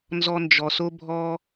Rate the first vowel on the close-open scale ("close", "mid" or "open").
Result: mid